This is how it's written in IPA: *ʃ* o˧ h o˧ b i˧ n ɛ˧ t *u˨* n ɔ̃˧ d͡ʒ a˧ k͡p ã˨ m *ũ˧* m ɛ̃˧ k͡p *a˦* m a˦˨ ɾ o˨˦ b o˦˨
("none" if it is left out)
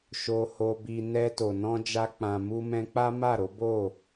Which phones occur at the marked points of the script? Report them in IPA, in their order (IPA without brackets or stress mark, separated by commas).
ʃ, o˨, u˧, a˦